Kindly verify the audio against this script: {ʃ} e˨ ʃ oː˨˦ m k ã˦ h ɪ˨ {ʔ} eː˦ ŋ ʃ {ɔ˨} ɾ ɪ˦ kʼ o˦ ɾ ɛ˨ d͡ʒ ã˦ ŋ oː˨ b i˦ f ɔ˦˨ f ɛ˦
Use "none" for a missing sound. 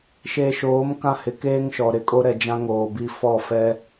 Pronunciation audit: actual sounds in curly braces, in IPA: ʃ, k, ɔ˨

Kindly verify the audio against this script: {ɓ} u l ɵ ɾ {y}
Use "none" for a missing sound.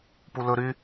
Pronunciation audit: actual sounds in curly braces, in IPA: p, y

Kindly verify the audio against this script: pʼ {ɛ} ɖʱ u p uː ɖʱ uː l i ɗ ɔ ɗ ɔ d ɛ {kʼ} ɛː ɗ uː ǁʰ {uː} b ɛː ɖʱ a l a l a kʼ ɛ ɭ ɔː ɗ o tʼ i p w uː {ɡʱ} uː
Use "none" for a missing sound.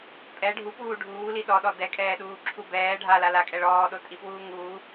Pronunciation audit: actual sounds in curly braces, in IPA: ɛ, kʼ, u, ŋ

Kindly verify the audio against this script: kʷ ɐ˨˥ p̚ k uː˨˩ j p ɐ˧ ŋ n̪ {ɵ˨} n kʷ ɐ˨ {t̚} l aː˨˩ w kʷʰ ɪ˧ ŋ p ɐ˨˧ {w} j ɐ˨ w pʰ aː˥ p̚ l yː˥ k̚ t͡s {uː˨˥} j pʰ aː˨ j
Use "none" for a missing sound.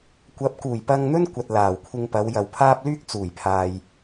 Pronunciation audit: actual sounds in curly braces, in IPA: ɵ˥, t̚, w, uː˨˩

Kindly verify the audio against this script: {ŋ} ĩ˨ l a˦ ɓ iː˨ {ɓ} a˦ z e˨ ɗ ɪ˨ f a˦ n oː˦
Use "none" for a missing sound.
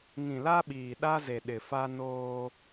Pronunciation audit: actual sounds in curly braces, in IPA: ŋ, ɗ

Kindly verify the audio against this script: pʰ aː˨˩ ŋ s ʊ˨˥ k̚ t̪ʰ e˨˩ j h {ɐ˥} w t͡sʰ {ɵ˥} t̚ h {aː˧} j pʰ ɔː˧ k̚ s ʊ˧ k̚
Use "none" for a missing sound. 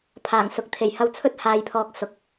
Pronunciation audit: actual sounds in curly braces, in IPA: ɐ˧, ɵ˥, aː˧

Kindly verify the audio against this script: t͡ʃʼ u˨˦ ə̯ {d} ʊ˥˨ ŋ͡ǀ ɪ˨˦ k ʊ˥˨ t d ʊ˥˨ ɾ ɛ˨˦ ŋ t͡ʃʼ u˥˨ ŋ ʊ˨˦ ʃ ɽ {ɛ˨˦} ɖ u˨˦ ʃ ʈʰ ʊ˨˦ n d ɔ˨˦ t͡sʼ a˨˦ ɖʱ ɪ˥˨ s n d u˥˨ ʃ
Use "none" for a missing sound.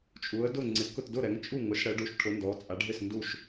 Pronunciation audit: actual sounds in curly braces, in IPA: d, ɛ˨˦

